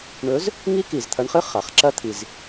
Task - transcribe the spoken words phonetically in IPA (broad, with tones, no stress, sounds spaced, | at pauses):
ɳ ɵ˨˥ z | ŋ i˦˥ k i˩ z t̪ʰ ɐ˨˥ ɳ χ ɨ˦˥ χ a˩ χ ǁ ɐ˦˥ t̪ʰ i˩ z